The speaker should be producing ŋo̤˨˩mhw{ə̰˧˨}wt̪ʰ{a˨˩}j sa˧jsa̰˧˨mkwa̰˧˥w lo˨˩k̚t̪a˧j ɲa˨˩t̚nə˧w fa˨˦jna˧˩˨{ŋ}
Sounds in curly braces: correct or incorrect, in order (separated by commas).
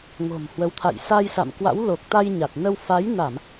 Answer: incorrect, incorrect, incorrect